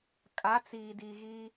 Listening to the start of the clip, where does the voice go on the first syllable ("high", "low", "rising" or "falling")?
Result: rising